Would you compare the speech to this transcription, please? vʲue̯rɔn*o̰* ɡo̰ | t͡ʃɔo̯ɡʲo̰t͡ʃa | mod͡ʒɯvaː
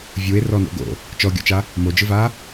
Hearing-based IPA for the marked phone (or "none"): o̰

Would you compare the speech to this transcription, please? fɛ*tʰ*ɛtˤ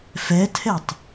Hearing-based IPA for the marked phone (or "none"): tʰ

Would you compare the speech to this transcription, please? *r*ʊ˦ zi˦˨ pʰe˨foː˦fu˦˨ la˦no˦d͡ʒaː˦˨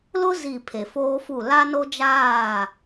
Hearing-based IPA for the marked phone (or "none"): l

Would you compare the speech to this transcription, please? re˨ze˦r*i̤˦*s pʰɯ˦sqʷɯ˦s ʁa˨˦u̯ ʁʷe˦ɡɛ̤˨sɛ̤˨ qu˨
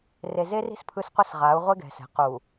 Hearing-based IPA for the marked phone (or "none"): i̤˦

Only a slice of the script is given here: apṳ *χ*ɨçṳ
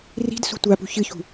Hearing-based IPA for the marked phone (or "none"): ç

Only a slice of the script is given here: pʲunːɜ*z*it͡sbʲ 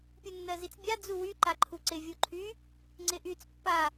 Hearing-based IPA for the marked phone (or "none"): z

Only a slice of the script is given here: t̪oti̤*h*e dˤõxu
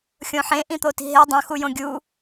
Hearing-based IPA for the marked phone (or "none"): ɦ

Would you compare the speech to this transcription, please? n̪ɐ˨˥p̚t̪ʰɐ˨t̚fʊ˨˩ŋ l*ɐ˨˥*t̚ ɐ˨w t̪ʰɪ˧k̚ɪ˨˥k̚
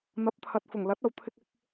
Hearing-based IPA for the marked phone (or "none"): ɐ˨˥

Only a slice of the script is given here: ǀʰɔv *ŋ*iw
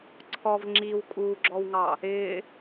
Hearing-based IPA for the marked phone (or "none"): ŋ͡ǁ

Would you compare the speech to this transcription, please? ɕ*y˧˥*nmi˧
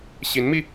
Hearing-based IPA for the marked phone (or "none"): i˧˥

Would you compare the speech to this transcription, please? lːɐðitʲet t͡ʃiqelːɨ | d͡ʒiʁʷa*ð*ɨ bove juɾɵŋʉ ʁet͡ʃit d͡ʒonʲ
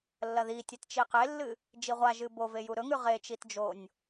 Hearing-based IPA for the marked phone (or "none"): ʒ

